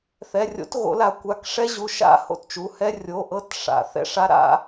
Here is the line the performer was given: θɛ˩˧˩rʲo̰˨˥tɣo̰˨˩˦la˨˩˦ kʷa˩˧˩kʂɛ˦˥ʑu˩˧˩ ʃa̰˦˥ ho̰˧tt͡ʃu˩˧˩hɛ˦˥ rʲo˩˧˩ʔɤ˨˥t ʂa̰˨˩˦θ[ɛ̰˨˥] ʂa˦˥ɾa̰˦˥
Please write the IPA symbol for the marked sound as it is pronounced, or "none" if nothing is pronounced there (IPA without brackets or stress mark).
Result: ɛ̰˦˥